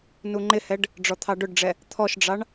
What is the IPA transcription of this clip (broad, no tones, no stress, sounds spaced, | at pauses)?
n u ŋ͡ǃ ɪ h ɛ ɖ | ɖ͡ʐ ɔ t̪ʰ ɑ ɖ ʊ ɖ ɖ͡ʐ ɛ | t̪ʰ ɔ ʃ ɖ͡ʐ ɑ ɳ